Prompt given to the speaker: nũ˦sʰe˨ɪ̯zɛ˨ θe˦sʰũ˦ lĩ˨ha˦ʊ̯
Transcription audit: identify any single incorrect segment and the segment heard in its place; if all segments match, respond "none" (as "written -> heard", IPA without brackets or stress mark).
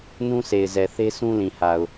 a˦ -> a˨